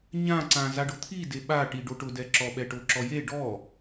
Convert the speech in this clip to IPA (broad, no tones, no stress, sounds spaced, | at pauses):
ɲ ã ǀ ã z a ɖ ʊ t̪ʰ i d e ɓ a ʈ i ɖ o ʈ ʊ d ɛ ǁ ɔ ɓ ɛ ʈ o ǁ ɔ j e ɖ ɔ